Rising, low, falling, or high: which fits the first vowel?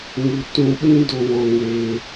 low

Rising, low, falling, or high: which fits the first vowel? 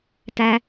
low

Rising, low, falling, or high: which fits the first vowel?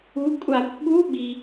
rising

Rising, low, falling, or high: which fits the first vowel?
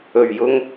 low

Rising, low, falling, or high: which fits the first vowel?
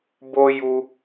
high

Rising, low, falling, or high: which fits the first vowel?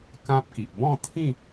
high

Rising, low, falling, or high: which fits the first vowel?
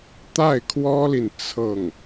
falling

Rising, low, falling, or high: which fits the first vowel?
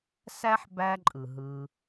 high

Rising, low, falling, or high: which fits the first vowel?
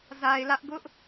low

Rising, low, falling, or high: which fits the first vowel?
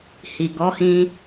low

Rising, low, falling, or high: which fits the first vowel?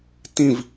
falling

